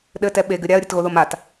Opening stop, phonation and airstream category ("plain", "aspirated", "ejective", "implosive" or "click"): implosive